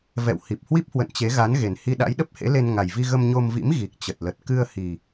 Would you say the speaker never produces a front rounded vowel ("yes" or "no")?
yes